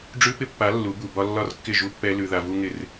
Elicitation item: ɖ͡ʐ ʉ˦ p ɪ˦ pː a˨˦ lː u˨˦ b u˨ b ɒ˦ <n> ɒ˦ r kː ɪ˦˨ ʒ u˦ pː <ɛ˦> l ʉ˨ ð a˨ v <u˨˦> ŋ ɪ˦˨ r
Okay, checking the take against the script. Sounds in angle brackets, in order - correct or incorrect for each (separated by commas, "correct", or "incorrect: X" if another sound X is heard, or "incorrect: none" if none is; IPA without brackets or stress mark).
incorrect: lː, correct, incorrect: u˦